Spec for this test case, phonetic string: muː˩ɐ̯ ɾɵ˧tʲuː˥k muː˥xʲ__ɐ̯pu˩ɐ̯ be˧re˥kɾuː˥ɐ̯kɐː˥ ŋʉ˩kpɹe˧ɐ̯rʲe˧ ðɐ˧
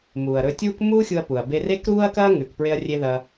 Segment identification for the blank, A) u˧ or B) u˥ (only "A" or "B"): A